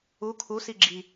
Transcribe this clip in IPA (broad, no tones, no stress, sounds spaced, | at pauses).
u kʰ u s i ɡ͡ǁ i